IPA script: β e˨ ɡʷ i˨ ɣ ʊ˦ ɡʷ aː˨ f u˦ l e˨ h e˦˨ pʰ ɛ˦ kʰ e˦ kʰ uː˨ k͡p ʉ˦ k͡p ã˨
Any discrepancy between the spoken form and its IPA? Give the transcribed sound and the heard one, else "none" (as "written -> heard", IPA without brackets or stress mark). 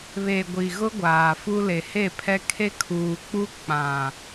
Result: ʉ˦ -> u˦